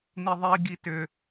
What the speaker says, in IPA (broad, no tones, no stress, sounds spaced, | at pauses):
n i ðˤ i ɡ i t ʏ